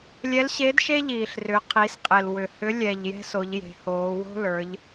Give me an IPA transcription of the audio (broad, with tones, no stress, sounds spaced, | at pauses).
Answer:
lʲ ɛ˧˥ l ɕ e˧˥ d ʃ e˥ ʎ iː˩ ɬ r ʏ˩˧ qʰ i˩˧ s qʼ e˩ l w ʏ˩ h ʏ˧˥ lʲ ɛ˩ ʎ j ɛ̤˧ s o˩˧ ʎ j e̤˩˧ h oː˩˧ w o̤˥ l ə˞˩˧ ʎ